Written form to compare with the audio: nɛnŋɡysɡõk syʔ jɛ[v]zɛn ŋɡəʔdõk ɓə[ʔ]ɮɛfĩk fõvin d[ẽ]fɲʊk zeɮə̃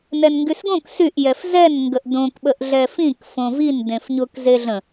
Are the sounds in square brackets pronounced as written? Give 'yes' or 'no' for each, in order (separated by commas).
no, yes, yes